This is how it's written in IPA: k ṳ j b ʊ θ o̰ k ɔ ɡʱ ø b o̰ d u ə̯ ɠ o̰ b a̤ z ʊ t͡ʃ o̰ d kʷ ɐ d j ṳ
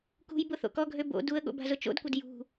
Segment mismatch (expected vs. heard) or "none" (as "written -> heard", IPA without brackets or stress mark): none